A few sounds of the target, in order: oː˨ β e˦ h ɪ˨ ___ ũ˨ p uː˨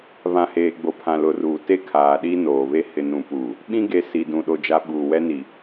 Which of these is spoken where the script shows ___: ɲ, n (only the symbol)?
n